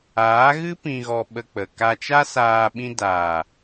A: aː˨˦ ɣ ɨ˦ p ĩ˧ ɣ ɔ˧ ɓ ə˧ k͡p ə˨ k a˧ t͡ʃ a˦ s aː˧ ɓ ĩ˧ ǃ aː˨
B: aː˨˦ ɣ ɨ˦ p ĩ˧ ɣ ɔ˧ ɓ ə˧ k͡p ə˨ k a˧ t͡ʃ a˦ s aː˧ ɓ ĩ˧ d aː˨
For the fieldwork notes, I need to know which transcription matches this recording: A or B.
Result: B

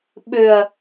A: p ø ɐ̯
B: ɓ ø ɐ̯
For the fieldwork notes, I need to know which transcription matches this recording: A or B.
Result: B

